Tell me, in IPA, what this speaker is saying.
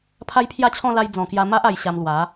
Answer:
pʰ a˦ j pʰ j a˥˧ t͡ɕʰ ɔ̃˥˧ l a˧ j d͡z ɔ̃˨˩ k j a˧ m a˦ ʔ a˧ j ɕ a˧ m l w a˨˦

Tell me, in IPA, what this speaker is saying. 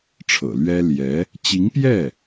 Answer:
ʈ͡ʂʰ ɤ̰˨˩ l ɥ ɛ˥ l j ɛ˧˥ | t͡ɕ i˧˥ ŋ p j ɛ˥˩

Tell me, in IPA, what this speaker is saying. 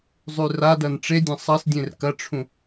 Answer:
zˤ ʉ r a d ɐ n ʈ͡ʂ e dʲ ɐ̃ sˤ ɐ s dʲ ẽ r k ɐ ʈ͡ʂʰ ũ

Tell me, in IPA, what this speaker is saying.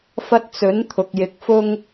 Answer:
f ɐ˧ t̚ t͡s ɵ˨˥ n t̪ʰ ʊ˨ k̚ j ɪ˨˥ k̚ f ʊ˥ ŋ

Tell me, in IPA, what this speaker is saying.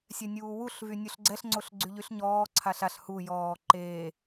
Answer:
sʲ ɛ nʲ uː w u ɬ v y nʲ u ɬ ɡ͡ǀ ɛ ɬ ŋ͡ǀ o ɬ ɡ͡ǀ y ʎ y ɬ ɲ ɔː ǀʰ a ɬ a ɬ h u j ɔː ǃ eː

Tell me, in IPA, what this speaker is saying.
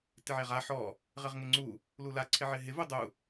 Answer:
t ɪ ʕ e ʁ a ħ ɔ | ʁ ɪ ʁ ŋ ɪ ŋ͡ǀ u | l u l a ǀʰ ɪ ʕ ɪ ɦ ɪ v u dˤ u

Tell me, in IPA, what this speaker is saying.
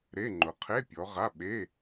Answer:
ɾ e˧˥˧ ŋ͡ǃ ʊ˨ qʰ e˧˥˧ pʲ ɔ˨˦ ʁ a˧˥˧ ɓ e˧˥˧

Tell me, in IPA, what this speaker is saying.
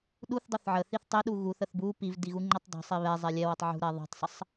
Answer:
ɗ u θ dˤ u θ ʕ ə θ i θ tˤ e ɗ u ɣ u θ ə θ b u p i v d i ɣ u ŋ͡ǃ ɛ tˤ dˤ o̤ sˤ i β ɛ zˤ e lʲ ɛ w ə tˤ ʕ ṳ ɾ ɛ ðˤ ṳ tˤ sˤ ə sˤ

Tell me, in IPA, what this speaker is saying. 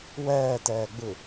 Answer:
w ɛː t ɛː ɡ͡b ɯ

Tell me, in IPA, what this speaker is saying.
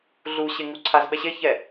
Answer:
ɮ u ɕ e ŋ u ǀʰ a z ɓ ɛ ɕ e ç ɛ

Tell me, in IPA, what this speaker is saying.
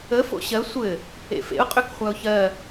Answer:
ə f o̰ ɕ ɜ sʷ ɘ | ḛ f ḛ ʊ̯ qʼ ø k χʷ a ʊ̯ ç ɜ

